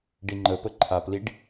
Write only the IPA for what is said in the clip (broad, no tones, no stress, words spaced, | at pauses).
ɖiŋ͡ǃəpə ǃʰapliɖ